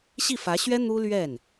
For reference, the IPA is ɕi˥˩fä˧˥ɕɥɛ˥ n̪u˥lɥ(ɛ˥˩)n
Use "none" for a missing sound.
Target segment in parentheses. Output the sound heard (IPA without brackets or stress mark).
ɛ˥˩